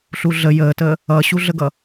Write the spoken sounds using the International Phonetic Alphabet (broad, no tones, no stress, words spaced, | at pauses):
ɬuɮə jəːtəː | ʌɕuɮəɡʌ